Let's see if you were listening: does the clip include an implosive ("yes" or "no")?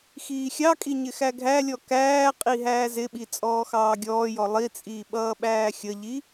yes